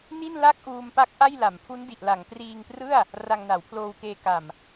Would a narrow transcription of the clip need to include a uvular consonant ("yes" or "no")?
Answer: no